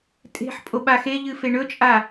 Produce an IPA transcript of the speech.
tʼ e̤ ħ pʼ o ɓ a x e ʎ ɨ f e ɳ ɵ t͡ʃʼ a

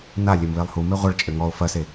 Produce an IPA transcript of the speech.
n a lʲ ɘ m β e lˠ h u m e ʁʷ ɐ ɭ t͡ʃʼ ɘ ŋ ɔ ʊ̯ f ɐ s e

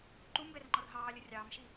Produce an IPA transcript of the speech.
ǃ u m b ɛ r ŋ͡ǃ ɔ r ɦ ɑː lʲ ə rʲ ɑː m ʃ i

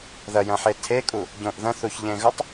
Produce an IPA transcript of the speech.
ð ɐ j ɐ̃ ħ e tʰ e kʼ u | ɟ õ ʔ ð ɐ̃ θ u ç ʎ ẽ ɣ ɵ tˤ

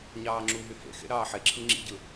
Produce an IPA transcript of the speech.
ɲ ɑː ŋ͡ǁ u ɦ y h ḛ x ḛ ɾ ɑː ħ e ǁʰ ɯ ŋ͡ǁ ḭ ɟ ɯ

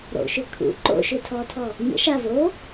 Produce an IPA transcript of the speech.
ɾ o̰ ʃ ʏ kʰ ṵ ǃ o̰ ʃ ʏ tʰ ɔ tʰ ɔ | ɲ ə̰ ʃ a v o

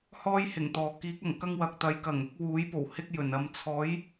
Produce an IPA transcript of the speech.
h ɔː˥ j h ɪ˨˩ ŋ t̪ ɔː˨ k iː˨˥ k̚ ɐ˨˩ ŋ k ɐ˥ ŋ w ɐ˨ k̚ t̪ ɐ˨˧ j k ɐ˨˩ ŋ ʊ˨˥ k̚ w uː˨˥ j p o˨˩ w h ɪ˥ k̚ j ɵ˨˩ n ɐ˧ m t͡sʰ ɔː˨˥ j

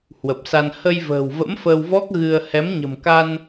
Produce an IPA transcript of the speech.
h w ə˨˩ p̚ s a˧ n h ə˧ j v ə̤ː˨˩ w v ə̰˧˥ m f əː˧ w v ɔ˦˥ k̚ ɣ ɨ˧ ə̯ h ɛ˨˦ m ɲ ə̤˨˩ m k a˧ n

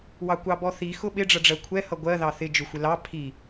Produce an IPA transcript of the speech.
w ɑ kʷ ɑ b ɔ θ i x ʊ ɓ ɪ ɖ͡ʐ ʌ ɖ͡ʐ ɜ kʷʰ ɛ h ʌ ɡʷ ɜ ð ɑ θ ɪ d͡ʒ ʊ xʷ ɪ l ɑ pʰ i

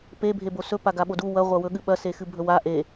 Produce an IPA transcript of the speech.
p e bʱ e b o s ɵ p a ɡ a ɓ o d u w ɐ ʁʷ ɐ w ɵ ɠ ɨ ɓ ɐ s e x ɨ bʱ ɵ w a ʔ e

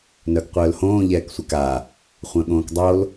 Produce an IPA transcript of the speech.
n œ ɡ qʷ œː l h õː ʎ ɛː k sʷ ɛ k a | χʷ œ̃ ɠ õː k dˤ o l

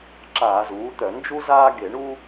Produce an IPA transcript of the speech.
ǁ aː˧˩˧ z uː˩˥ t̪ œ˧˩˧ n d͡ʒ u˦ z aː˦ ɡ e˧˩˧ ɳ u˦

